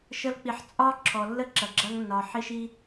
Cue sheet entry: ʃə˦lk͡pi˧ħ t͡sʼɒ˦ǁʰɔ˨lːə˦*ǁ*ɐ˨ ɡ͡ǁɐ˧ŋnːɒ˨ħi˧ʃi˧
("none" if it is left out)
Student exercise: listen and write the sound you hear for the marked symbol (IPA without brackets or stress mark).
ǁ